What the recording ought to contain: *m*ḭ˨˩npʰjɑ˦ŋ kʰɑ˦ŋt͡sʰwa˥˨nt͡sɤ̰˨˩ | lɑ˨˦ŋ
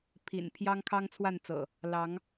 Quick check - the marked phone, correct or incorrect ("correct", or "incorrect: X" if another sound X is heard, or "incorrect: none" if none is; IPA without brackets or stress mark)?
incorrect: pʰ